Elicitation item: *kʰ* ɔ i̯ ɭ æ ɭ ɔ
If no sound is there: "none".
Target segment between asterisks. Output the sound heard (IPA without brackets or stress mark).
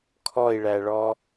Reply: kʰ